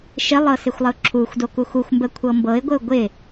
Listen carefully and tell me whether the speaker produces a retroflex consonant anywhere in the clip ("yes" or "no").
no